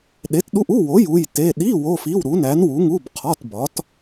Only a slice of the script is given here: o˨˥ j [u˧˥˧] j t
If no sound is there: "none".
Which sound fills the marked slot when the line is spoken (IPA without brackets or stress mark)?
u˧˥˧